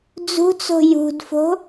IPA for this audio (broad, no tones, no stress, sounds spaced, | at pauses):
d͡z ṳ t͡s o̤ j ṳ d f o̤